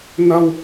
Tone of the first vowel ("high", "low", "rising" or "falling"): high